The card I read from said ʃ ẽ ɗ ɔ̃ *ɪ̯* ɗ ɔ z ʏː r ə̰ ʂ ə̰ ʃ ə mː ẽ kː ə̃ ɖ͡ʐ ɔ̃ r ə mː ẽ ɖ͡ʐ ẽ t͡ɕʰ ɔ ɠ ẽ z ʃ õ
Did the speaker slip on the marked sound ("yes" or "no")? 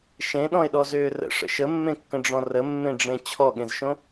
no